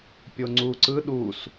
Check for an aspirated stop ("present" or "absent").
absent